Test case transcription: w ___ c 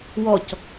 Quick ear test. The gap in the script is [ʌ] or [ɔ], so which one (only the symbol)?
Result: ɔ